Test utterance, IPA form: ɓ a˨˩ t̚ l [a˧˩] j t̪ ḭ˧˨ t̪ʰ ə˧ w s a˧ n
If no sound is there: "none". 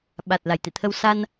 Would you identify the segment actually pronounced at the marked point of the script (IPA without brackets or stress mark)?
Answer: a˧˩